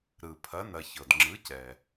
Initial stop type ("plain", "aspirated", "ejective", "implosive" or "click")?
aspirated